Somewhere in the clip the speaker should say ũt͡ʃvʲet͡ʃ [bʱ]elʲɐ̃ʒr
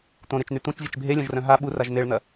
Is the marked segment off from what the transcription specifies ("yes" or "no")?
no